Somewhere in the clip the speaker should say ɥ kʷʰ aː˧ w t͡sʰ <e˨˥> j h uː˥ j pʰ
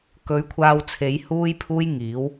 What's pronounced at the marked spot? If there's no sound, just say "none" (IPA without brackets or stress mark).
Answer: e˨˥